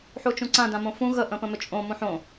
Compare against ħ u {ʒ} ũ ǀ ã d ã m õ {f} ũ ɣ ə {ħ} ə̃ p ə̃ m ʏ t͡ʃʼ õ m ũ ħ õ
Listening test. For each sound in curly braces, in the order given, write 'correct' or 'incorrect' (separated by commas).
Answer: incorrect, correct, incorrect